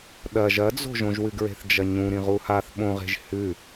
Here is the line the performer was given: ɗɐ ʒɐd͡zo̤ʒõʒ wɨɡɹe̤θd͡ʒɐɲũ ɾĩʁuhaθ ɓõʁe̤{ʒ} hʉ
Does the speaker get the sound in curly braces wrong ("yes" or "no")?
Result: no